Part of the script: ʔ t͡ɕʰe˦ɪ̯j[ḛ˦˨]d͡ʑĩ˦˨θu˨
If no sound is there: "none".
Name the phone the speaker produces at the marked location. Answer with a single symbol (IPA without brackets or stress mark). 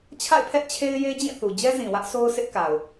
e˦